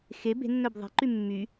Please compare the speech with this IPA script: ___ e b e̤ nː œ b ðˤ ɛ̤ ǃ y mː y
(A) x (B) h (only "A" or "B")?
A